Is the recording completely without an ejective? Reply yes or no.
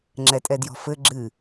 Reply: no